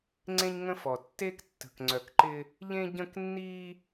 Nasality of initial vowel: nasal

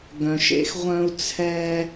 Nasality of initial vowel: nasal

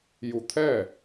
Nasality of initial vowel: oral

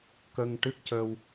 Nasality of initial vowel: oral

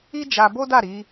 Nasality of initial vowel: oral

